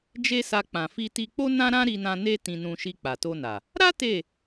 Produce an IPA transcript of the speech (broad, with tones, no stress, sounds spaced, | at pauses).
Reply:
d͡ʒ e˦ s a˧ k͡p ã˨ f i˧ t i˧ k͡p o˦ n ã˦ ɾ ã˦ ɾ i˧ n ã˧ n e˦ t ĩ˧ n ũ˧ ʃ i˧ k͡p a˨ t o˧ n a˨ | ɾ a˦ t e˦˨